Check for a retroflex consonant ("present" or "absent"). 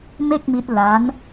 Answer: absent